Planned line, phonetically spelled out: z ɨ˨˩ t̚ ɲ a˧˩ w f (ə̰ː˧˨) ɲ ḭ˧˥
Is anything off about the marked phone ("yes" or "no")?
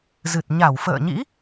no